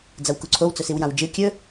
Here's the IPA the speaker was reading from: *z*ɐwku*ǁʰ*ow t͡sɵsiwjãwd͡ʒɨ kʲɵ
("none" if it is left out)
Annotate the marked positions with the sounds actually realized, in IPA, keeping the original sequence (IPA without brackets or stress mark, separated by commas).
d͡z, ǀʰ